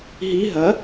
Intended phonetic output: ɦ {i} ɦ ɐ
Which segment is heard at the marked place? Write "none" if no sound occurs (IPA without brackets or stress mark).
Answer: i